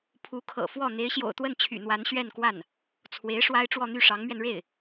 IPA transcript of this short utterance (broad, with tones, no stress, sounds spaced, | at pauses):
pʰ u˧˥ kʰ ɤ̰˨˩ f w ɔ˥˩ n̪ e˧˥ ɪ̯ ɕ j o̰˨˩ ʊ̯ t̪ w ə˥˩ n t͡ɕʰ y̰˨˩ n̪ w a˧˥ n ɕ ɥ ɛ˥˧ n k w a˥˩ n | t͡sʰ w e˧˥ ɪ̯ ʂ w a˥ ɪ̯ ʈ͡ʂ w ɔ˥˧ n̪ y˥˩ ʂ ɑ˧˥ ŋ m ɥ ɛ˧ n ɻ e˥˩ ɪ̯